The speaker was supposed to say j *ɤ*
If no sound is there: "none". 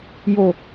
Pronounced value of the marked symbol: o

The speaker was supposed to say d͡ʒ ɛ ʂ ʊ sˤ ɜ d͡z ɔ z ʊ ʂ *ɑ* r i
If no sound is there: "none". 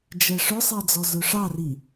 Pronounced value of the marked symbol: ɑ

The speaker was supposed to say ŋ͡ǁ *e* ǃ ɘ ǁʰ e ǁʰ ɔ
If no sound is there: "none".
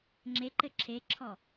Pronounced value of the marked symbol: e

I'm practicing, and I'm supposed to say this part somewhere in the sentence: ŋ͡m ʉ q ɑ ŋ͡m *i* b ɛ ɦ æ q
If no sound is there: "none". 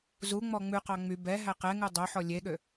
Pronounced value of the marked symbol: y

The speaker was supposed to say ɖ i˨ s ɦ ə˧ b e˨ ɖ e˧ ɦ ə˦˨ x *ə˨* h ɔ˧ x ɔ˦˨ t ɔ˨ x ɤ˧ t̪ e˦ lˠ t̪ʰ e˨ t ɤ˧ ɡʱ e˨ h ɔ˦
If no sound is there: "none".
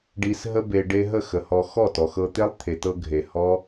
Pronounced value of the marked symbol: ə˨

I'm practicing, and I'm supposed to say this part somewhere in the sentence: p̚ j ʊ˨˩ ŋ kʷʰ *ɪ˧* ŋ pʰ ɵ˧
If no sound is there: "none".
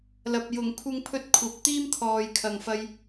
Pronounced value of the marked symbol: ɪ˧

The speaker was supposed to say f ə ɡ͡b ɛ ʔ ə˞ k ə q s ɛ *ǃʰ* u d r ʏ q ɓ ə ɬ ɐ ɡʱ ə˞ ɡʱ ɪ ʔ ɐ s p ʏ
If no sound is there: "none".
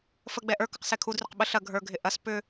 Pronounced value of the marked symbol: kʰ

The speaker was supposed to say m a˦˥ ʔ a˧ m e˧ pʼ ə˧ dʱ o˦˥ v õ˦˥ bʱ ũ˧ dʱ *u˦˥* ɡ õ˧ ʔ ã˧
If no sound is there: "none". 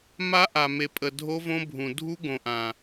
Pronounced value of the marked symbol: u˦˥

